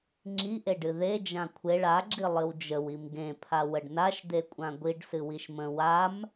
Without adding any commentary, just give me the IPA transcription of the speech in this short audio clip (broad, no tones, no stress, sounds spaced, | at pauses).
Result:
ŋ͡ǁ i ʔ e ɖ ɨ ð e d͡ʒ ã kʷʰ e ɭ a ɡ͡ǁ i lˠ ɨ w d͡ʒ ə w i m ɡ ẽ pʰ a w ə ɖ n a ʃ d̪ e kʷʼ ã ɡʷ i ɖ s ɨ w i ʃ m ə̃ w a m